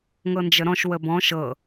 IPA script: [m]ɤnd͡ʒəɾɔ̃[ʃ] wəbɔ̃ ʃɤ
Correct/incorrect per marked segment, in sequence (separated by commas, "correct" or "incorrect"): incorrect, correct